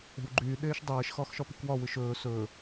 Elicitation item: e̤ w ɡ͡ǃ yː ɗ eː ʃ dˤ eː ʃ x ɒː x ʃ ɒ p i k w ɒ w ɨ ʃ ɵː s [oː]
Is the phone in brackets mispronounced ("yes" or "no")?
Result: yes